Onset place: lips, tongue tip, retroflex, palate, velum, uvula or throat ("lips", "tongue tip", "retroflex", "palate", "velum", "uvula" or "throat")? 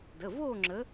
tongue tip